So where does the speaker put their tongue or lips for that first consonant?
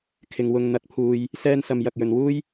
velum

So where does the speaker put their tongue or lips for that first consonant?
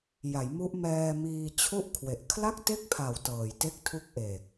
palate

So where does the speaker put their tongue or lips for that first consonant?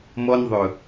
lips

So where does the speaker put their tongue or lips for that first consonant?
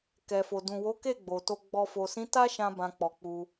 velum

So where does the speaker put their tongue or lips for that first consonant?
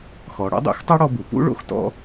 velum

